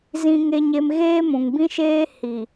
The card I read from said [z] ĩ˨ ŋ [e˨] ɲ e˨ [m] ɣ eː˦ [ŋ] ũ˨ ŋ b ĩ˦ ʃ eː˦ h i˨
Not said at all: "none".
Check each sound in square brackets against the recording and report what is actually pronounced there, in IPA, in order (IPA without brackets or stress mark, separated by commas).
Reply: z, e˨, m, m